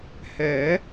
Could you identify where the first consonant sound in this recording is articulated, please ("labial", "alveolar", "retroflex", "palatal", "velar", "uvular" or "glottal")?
glottal